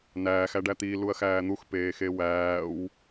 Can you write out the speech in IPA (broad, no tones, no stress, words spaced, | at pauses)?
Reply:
næːx æɖæt̪iː luɐ̯xæːn̪ux peːxewæːw